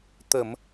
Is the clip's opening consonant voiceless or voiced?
voiceless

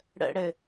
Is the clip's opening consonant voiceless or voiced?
voiced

